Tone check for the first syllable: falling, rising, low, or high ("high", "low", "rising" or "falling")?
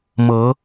rising